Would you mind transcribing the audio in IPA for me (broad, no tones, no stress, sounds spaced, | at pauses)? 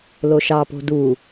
l o ʃ ɑ p o̤ d u